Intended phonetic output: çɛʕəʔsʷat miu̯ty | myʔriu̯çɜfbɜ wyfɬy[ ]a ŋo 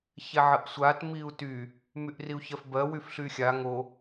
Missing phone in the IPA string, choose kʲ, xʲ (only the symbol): xʲ